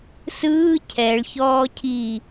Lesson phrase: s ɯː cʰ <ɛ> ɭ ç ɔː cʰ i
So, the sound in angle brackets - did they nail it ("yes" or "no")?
yes